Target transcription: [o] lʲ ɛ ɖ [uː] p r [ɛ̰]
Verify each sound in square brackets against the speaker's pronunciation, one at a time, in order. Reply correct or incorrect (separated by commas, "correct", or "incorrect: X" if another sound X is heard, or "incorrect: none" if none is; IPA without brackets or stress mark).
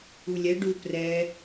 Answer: incorrect: u, incorrect: u, incorrect: ɛ